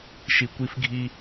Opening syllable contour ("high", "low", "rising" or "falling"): low